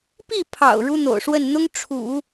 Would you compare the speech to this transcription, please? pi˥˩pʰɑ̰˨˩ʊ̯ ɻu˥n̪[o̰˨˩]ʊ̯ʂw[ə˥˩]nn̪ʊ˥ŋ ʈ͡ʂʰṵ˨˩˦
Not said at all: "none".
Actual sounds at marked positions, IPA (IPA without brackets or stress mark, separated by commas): o̰˨˩, ə˥˩